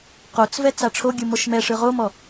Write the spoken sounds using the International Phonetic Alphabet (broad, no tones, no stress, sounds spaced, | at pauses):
q o t͡s v ɛ t͡s a ʈ͡ʂʰ o ɡʲ ɯ m o ʃ m ɛ ʂ ɯ ʁ o m ɔ